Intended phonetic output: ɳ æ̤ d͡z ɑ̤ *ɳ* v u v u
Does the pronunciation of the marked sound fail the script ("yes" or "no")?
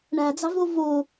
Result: yes